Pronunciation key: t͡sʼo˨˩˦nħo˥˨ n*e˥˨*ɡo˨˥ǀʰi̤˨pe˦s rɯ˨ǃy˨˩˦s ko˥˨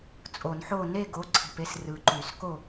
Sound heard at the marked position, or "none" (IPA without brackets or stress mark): e˥˨